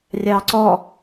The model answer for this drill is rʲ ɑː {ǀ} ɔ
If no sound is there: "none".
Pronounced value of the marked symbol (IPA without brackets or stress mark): ǀ